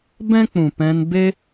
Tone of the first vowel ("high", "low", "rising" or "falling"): high